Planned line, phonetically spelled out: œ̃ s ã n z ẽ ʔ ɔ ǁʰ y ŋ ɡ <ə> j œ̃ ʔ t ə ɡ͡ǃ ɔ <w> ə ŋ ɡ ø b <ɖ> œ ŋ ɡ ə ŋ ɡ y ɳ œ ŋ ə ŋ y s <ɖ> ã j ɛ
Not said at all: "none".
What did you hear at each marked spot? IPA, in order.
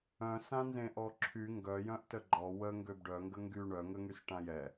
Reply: œ, w, ɖ, ʈ

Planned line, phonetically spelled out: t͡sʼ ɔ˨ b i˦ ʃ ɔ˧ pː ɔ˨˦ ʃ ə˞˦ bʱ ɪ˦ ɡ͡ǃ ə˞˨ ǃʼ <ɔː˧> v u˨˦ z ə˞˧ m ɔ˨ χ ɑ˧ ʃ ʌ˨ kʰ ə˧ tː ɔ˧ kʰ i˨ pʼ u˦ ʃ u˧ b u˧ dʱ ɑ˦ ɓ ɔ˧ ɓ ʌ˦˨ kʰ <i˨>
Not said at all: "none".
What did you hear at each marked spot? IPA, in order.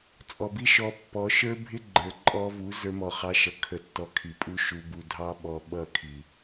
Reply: ɔ˧, i˨

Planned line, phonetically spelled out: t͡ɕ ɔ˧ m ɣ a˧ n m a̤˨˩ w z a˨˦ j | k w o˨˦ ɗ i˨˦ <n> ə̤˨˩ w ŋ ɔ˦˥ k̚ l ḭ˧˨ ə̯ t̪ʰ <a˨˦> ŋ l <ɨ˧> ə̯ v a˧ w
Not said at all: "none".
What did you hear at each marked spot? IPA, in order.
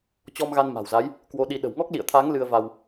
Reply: ɗ, a˨˦, ɨ˧

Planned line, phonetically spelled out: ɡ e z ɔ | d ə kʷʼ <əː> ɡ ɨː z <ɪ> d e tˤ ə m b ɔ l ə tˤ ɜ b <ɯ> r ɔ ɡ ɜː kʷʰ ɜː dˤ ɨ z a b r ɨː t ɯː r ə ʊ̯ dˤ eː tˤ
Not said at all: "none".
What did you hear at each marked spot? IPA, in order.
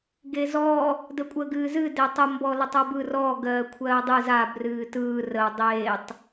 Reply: əː, ɨ, ɯ

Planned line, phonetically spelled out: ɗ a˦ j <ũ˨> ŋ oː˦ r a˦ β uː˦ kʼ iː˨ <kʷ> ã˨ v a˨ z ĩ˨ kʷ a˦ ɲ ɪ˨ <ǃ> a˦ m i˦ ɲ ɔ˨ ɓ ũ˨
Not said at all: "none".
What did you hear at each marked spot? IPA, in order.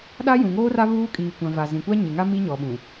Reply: ũ˨, kʷ, ŋ

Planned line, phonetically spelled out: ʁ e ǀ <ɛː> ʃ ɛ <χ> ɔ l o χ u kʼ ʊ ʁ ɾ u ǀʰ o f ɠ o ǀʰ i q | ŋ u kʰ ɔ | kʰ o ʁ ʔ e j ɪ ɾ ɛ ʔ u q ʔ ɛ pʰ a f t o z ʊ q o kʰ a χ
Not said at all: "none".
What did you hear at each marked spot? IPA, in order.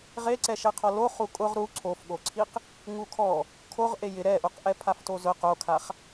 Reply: ɛ, qʰ

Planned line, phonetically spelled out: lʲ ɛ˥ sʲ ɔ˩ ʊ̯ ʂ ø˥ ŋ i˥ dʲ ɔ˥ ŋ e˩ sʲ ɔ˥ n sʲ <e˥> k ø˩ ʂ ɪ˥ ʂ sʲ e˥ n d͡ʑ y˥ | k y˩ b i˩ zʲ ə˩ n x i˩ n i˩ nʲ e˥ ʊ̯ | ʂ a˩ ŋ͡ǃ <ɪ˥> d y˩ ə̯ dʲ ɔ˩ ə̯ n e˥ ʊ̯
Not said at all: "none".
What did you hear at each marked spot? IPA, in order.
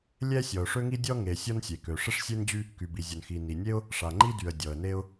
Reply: e˩, i˥

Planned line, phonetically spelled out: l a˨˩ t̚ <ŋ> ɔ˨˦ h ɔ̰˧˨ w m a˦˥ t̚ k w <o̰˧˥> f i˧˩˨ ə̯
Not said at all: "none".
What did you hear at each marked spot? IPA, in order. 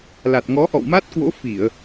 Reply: ŋ, o̰˧˥

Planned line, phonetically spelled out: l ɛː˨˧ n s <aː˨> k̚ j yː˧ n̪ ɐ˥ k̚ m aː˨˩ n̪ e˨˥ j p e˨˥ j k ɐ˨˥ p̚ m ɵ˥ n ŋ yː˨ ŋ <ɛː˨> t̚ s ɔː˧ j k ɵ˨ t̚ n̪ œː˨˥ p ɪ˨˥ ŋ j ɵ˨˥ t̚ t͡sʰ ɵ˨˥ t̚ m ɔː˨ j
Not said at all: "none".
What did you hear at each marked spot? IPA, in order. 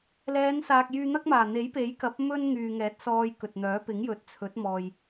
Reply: aː˨, ɛː˨˥

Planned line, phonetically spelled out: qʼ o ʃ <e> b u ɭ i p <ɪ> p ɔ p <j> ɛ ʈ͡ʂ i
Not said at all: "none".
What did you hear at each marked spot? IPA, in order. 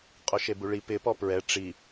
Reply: e, ɪ, ɹ

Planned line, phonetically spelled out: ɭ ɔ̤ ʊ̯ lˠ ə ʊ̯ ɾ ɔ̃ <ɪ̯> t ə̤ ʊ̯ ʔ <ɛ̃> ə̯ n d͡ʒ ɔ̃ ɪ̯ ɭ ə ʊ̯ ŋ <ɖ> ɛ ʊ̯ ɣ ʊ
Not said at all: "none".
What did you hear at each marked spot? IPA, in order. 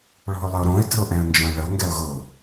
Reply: ɪ̯, ɛ̃, ɡ

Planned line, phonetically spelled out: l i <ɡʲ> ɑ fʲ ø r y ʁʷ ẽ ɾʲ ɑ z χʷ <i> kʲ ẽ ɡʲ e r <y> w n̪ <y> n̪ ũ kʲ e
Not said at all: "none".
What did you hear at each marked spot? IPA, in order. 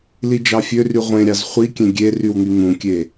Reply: d͡ʒ, i, y, y

